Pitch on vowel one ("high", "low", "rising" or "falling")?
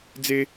high